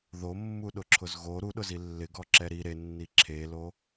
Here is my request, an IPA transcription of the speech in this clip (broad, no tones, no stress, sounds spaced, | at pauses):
ð o mː u ɗ ʊ ǁʰ ʊ z ɣ o ɾ u ɗ ʊ z i lː ɪ ɡ ɔ ǁ ɛ ɾ i ɾ e nː i ǁʰ e l o